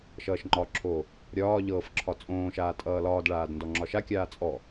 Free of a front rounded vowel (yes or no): yes